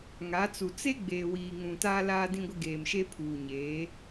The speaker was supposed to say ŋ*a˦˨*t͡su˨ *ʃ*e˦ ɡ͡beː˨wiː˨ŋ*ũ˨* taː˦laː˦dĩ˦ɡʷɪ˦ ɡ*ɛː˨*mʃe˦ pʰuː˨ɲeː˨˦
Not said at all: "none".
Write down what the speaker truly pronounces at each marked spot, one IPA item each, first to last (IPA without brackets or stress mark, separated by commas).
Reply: a˨˦, t͡s, ũ˨, eː˨